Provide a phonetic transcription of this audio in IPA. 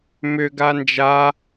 m ʏ ɡ a n d͡ʒ a

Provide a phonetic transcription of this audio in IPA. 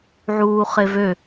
ʕ uː χ e v ø

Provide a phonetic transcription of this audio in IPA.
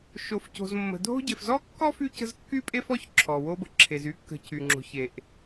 ʃ o˨ f c o̤˨ z mː ə̤˨ dʱ o̤˥ ɟ e˨ f z ɔ˥ kː ɔ˥ f y˦ c ə̤˦ z kː y˥ pʼ e˥ f ɔ˥ ç ǁʰ ɔ˩ w o˦ b ə˩ ǁʰ e˨ z y˥ kː ə̤˨ c y˩ ŋ͡ǁ o̤˨ ç e˩ ʔ

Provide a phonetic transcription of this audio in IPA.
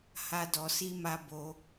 h a˦ d ɔ˧ s i˦ m a˦ b o˧

